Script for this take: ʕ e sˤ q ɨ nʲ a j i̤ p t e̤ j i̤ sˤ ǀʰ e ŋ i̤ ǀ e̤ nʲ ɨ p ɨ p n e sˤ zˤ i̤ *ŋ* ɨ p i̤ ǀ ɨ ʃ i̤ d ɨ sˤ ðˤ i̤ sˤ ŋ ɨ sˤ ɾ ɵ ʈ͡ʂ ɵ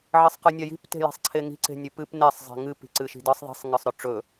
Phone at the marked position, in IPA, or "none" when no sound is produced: ŋ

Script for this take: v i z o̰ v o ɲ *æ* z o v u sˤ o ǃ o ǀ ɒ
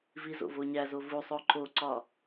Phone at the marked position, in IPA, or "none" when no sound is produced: æ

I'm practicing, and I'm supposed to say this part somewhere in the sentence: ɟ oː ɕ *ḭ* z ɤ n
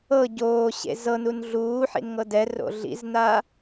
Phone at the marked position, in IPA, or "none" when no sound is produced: ḛ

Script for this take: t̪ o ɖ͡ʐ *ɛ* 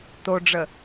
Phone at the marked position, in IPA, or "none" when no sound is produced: ə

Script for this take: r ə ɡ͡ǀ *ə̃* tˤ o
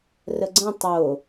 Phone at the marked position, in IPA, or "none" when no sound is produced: ə̃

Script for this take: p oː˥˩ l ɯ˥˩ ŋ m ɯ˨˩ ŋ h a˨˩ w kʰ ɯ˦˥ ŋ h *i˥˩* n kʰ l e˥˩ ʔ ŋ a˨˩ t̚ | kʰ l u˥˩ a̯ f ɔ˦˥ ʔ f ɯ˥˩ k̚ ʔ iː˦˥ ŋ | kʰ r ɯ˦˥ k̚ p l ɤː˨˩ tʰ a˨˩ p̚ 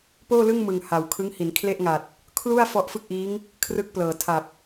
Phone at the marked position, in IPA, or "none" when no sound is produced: i˩˦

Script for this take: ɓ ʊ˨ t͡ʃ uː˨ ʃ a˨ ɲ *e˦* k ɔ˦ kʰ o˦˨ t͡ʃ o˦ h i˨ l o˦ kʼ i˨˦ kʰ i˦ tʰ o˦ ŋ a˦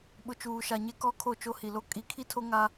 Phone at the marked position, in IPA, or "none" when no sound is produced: e˦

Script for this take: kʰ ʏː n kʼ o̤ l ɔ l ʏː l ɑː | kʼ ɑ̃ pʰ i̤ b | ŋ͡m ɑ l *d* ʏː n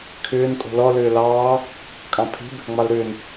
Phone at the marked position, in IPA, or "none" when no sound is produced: ɾ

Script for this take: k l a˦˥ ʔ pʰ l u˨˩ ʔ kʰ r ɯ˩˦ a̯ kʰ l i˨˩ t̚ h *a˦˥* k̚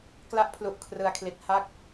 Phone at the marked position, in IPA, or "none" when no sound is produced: a˦˥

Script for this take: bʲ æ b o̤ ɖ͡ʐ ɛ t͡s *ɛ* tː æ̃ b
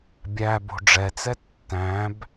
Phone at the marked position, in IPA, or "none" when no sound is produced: ɛ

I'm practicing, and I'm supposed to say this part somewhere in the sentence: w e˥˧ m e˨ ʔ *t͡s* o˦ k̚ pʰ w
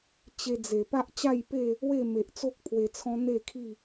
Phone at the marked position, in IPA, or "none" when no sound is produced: t͡s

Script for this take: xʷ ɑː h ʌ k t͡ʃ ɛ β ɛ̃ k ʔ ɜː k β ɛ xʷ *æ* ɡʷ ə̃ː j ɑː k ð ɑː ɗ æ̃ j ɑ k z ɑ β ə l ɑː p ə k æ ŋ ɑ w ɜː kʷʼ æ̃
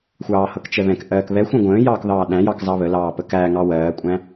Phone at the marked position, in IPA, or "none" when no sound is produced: æ̃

